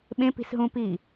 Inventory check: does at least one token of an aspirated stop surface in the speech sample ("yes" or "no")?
no